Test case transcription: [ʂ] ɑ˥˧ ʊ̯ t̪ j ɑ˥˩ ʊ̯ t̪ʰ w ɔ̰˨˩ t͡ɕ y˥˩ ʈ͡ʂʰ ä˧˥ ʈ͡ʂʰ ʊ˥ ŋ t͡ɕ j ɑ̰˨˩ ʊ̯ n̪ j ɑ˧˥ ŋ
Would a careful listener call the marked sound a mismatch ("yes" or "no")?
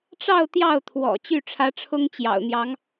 yes